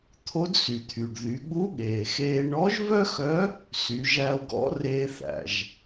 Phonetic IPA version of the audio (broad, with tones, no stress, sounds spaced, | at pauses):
t̪ʰ o˧˥ d s y˩ t̪ʰ y˩ ɖ ð y˩˧ ɠ u˧˥ ɠ eː˩ x eː˧ ɳ ɔ˧˥ ʒ v œ˥ x œ˧˥ | s y˩˧ ʒ æ˧ o̯ ɡ ɔ̰˧˥ r eː˧ θ æ̰˩ ʒ